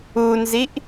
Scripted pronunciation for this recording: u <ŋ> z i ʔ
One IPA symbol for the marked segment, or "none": n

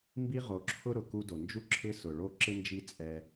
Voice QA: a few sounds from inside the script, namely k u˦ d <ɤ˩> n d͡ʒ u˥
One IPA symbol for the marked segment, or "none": o˩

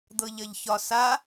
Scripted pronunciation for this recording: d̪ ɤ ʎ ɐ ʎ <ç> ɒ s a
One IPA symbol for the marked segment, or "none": ç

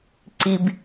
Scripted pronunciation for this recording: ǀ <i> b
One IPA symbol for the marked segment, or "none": i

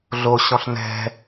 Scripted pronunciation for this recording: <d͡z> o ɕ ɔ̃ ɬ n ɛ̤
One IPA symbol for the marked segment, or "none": ɮ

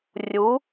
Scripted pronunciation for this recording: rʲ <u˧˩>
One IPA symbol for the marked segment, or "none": u˩˥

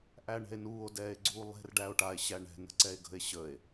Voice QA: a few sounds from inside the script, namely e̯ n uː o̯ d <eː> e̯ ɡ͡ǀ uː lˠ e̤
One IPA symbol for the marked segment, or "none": ɛː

